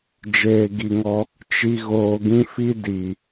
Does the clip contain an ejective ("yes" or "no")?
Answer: no